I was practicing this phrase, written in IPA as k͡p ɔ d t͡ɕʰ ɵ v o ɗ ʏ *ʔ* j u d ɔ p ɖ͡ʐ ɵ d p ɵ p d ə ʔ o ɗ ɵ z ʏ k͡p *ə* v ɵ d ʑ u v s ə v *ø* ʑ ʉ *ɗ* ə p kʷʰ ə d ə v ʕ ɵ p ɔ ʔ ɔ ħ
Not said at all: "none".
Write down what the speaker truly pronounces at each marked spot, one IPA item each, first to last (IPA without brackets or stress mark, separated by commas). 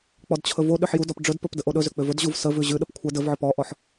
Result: ħ, ʏ, ʉ, ɗ